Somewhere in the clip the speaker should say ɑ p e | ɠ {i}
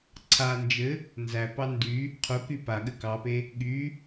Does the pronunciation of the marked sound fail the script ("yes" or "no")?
yes